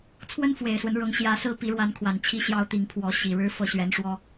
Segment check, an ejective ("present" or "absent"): absent